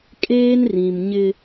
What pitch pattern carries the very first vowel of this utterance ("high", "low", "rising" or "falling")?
high